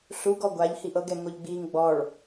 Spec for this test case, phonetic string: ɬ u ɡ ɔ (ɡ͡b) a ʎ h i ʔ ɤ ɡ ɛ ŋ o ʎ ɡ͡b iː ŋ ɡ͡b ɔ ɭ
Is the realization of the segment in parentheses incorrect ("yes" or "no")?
yes